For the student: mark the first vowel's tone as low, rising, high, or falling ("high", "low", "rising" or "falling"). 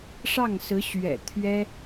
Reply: falling